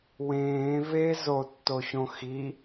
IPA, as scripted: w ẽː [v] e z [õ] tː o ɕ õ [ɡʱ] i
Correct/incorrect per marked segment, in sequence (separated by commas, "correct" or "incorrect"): correct, incorrect, incorrect